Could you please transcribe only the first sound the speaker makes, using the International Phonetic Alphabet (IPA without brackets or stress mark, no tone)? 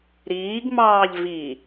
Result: ɾ